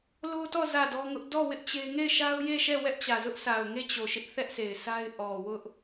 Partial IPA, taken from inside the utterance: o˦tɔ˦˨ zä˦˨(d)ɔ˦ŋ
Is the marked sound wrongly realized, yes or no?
no